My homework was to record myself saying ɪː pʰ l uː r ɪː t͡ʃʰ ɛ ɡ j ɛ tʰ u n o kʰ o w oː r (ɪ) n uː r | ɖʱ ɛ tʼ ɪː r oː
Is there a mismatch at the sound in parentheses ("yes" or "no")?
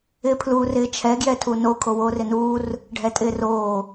no